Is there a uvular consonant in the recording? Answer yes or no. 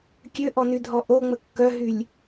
no